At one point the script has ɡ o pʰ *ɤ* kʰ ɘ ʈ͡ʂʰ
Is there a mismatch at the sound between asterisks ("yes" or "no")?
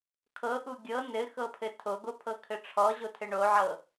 no